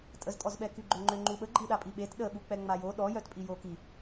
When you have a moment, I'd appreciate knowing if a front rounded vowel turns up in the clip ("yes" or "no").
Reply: yes